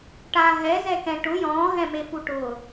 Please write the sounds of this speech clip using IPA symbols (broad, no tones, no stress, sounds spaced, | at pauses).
ʈ a ɦ ɛ z ɛ k ɛ̃ ʈ ʊ j ɔ̃ː ɦ ɛ̃ m e f u ʈ ʊː